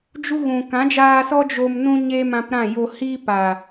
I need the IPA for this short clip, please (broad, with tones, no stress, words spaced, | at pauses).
d͡ʒu˦ɣũ˨ kã˨˦d͡ʒaː˧sɔ˦ d͡ʒo˧mnũ˦ ɲe˦mã˧pɾã˦˨jo˧ hiː˦paː˨